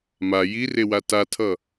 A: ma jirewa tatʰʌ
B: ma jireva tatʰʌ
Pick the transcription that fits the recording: A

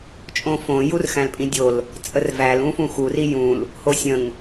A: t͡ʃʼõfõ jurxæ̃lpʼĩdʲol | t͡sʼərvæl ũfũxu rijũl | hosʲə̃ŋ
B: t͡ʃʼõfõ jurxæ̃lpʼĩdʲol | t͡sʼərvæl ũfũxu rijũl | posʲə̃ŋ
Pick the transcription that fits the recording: A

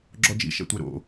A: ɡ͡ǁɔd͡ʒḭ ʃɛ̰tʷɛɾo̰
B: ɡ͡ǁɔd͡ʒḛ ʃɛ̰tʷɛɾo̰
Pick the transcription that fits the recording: A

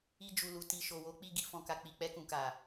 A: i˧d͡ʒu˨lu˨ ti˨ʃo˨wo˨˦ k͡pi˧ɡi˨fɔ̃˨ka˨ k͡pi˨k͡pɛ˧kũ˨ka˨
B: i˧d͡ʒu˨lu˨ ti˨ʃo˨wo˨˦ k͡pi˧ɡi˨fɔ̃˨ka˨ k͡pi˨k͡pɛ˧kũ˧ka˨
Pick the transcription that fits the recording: A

